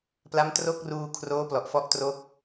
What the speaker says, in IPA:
p l a˦˥ m t r o˥˩ k̚ r uː˧ kʰ r oː˦˥ p l ɔ˨˩ ʔ f ɔ˦˥ ʔ t r o˦˥ k̚

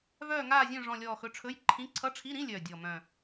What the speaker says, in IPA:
v œː˦˨ ŋ aː˦˨ zʲ œ̃˦˨ ʐ ɔ̃˦˨ lʲ ɔː˦˨ x ɵ˧˥˧ ʈ͡ʂʰ ɵ˧˥˧ j ǃʰ ĩ˧˥˧ ǀʰ ʌ˧˥˧ ʈ͡ʂʰ i˧˥˧ ɾ ĩ˧˥˧ lʲ œː˨˩ dʲ ɔ˨˩ m œ̃˨˩

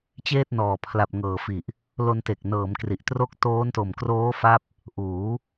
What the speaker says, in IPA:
t͡ɕ eː˥˩ t̚ n ɔː˨˩ pʰ l a˨˩ p̚ ŋ ɤː˨˩ f i˨˩ ʔ | l o˧ n t e˨˩ k̚ n ɤː˩˦ m k r i˨˩ ʔ t r o˥˩ k̚ t oː˦˥ n t o˨˩ m k r oː˦˥ f a˦˥ p̚ | ʔ uː˩˦

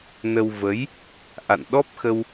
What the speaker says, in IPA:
n ə˧ w v ə˨˦ j | ʔ a̰˧˨ n ɗ ɔ˦˥ p̚ x ə˧ w

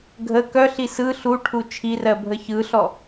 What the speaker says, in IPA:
ɡʱ ə k œ ɬ i s ɯ ɬ u ʈʰ u t͡ʃʰ i r ɜ bʱ ə ç ɯ ɬ ɔ

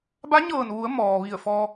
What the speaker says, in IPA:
b a˧˥ ɲ ɤː˧˩ n ʋ u˩˧ ə̯ m ɔː˩ ʋ i˧˩ ə̯ f ɔː˧

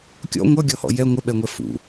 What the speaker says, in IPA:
kʲ ɔ̰ ŋʷ ʌ ɡʲ ɔ h ɔ̰ j ɛ ŋʷ ə ɓ ɛ ŋʷ ɛ f ṵ

